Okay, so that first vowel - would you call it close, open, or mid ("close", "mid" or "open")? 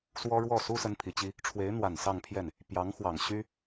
mid